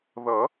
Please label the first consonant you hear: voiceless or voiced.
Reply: voiced